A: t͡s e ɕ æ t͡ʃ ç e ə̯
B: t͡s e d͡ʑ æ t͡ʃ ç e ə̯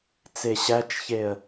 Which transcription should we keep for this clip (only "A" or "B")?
A